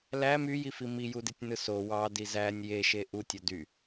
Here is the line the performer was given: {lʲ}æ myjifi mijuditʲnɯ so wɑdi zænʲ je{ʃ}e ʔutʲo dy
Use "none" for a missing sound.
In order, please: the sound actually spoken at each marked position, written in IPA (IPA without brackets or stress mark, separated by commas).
l, ʃ